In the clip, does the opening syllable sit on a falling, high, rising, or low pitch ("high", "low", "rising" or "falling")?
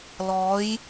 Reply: rising